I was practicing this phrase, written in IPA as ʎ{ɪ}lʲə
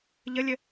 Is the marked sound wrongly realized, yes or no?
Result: yes